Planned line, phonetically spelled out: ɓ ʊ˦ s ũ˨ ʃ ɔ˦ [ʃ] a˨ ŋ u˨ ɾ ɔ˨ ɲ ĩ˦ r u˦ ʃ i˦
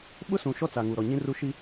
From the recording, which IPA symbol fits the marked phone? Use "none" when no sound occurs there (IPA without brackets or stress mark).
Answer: t͡s